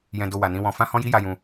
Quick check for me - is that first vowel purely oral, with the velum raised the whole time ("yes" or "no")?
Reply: no